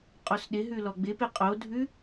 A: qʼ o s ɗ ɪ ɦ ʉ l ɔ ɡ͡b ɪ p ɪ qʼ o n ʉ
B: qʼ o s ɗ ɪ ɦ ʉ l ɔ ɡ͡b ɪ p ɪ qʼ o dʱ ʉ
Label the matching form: B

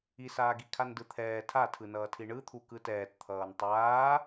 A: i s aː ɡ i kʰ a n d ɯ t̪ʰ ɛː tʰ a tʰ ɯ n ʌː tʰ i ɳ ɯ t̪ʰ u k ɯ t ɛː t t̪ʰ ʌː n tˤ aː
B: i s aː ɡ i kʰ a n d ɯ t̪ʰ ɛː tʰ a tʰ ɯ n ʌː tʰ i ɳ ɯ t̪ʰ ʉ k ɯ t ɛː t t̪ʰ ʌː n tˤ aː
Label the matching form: A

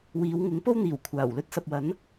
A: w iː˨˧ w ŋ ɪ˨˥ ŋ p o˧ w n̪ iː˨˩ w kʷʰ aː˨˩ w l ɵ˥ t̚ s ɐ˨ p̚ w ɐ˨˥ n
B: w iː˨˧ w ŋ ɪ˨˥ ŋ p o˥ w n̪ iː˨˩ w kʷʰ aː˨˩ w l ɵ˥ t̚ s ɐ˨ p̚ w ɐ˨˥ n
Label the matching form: B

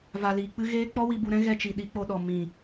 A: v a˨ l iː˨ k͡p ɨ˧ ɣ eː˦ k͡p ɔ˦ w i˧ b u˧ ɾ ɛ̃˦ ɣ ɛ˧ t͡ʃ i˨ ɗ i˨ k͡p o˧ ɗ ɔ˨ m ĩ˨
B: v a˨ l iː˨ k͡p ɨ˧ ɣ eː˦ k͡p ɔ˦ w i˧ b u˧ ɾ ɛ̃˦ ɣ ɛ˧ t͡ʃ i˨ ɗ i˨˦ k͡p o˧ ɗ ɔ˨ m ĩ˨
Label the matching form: B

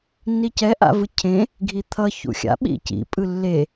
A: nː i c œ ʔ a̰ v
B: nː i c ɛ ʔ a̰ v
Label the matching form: B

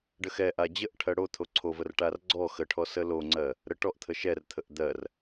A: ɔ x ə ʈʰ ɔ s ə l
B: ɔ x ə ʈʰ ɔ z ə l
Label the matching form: A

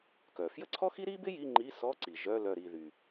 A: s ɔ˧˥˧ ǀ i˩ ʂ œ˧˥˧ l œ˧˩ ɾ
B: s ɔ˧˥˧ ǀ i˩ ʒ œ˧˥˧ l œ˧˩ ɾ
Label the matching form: B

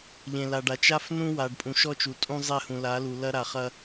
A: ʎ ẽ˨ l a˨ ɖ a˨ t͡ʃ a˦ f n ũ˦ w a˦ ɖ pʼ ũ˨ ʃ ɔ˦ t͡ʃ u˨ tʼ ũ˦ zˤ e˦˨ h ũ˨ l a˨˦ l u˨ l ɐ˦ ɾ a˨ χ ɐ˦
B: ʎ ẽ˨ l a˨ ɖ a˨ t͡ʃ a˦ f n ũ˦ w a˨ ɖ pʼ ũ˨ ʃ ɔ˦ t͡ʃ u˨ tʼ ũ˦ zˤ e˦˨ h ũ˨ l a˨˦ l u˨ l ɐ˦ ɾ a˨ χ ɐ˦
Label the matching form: B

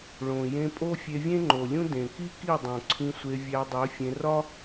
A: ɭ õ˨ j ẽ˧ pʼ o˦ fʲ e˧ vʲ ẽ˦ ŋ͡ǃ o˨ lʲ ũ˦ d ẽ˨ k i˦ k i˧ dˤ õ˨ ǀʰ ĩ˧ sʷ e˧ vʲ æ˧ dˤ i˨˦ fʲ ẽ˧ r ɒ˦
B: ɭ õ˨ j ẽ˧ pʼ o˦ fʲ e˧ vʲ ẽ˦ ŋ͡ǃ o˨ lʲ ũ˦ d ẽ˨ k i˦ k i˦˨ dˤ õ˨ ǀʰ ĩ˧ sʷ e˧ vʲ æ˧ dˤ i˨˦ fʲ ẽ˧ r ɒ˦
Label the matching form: B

